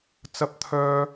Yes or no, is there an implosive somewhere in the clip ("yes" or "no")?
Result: no